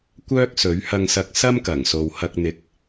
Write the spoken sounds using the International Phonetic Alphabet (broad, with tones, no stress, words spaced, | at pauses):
kʷœː˥k̚sɵ˨˥ɥhɐ˧ŋsɐ˧k̚ sɐ˥mkɐ˨˩ŋso˨w hɐ˧k̚ n̪ɪ˨˥k̚